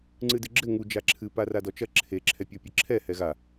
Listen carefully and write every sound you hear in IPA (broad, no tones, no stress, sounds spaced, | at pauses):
ŋ͡ǀ ɨ d ɨ ɡ͡ǁ ɘ ŋ u d͡ʒ a ǁʰ ɨ p a r a d ɔ t͡ʃ ɐ ǁʰ e ǁʰ ɛ pʲ ɔ pʲ ɨ ǁʰ ɛ h ɛ ɣ a